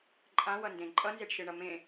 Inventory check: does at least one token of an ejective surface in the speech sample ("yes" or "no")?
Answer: yes